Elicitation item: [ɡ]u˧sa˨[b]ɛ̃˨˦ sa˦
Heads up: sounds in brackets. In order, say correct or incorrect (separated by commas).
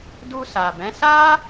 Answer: incorrect, correct